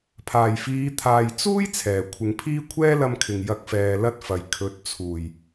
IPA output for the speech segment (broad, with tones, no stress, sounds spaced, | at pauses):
pʰ aː˨˩ j f iː˨˧ t̪ʰ aː˨ j t͡s uː˥ j t͡sʰ ɛː˨˩ kʷʰ ɪ˨˧ ŋ pʰ iː˥ kʷʰ ɛː˥ l ɐ˧ m kʰ ɪ˨ ŋ j ɐ˧ k̚ f ɛː˨ l ɐ˥ t̚ f ɐ˨ j kʰ ɵ˨˥ t̚ t͡sʰ uː˨˩ j